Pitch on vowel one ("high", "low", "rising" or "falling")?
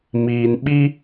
low